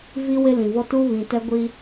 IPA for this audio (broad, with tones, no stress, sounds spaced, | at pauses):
v i˦ w ɪ˦ l ĩ˨ v ɔ˦ t u˦ β ĩ˨ t ɛ˦ ɡʷ i˦